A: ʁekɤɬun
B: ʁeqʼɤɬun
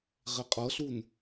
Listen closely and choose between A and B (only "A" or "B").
B